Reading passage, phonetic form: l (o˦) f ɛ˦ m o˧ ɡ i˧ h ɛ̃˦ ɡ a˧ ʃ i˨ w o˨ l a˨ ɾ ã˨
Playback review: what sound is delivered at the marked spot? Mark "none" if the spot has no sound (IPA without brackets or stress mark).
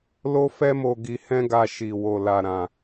o˦